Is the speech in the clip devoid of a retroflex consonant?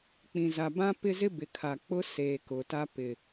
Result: yes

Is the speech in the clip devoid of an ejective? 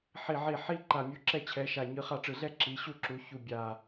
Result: yes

